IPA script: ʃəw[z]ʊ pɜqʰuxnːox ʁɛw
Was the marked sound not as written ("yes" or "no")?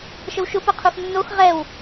yes